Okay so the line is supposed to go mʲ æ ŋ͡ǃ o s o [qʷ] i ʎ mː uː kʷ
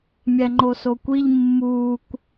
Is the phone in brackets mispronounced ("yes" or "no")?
yes